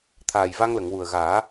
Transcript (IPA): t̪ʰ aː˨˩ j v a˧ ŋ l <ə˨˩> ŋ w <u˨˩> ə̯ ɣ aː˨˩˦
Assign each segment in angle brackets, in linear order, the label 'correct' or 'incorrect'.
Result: incorrect, correct

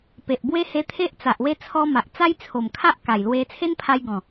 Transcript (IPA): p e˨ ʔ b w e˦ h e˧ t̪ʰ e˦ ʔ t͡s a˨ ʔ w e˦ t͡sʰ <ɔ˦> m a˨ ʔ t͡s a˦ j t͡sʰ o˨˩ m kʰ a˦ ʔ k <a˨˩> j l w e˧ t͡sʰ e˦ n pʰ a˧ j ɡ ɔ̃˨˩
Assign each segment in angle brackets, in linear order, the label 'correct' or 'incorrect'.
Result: incorrect, correct

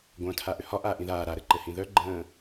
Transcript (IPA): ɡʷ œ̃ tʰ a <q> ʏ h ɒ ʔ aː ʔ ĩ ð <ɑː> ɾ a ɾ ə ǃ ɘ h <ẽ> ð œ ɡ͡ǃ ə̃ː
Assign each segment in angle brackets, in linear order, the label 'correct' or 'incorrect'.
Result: incorrect, incorrect, incorrect

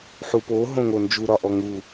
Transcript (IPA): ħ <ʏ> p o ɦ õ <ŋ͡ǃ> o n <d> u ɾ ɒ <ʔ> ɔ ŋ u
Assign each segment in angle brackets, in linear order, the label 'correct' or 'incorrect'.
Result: incorrect, incorrect, incorrect, correct

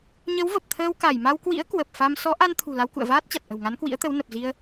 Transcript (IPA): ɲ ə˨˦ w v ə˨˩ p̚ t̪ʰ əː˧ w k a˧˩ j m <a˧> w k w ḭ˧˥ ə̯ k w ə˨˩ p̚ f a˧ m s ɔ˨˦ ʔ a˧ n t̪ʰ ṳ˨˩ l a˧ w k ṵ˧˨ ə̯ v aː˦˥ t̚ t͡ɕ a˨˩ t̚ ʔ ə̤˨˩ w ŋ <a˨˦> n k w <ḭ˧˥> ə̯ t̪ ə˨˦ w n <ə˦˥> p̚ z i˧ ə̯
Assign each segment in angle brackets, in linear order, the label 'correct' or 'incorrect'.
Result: correct, correct, correct, incorrect

